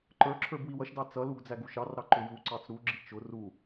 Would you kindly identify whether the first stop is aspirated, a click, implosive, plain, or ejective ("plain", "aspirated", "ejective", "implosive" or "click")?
click